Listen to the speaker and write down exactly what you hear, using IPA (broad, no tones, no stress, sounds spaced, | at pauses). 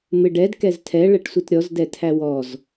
m ɪ ɖ ɛ d k ɛ z tʰ ɛ ɭ ɛ ʈ sʷ i t ɾʲ ɔ z d ɛ tʰ æ w ɔ z